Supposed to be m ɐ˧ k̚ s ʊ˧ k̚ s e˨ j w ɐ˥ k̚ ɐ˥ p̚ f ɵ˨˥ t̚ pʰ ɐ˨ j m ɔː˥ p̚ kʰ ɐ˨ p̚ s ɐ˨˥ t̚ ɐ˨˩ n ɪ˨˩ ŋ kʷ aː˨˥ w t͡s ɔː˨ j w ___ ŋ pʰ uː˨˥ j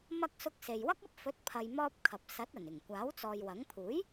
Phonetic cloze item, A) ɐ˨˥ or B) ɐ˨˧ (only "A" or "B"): A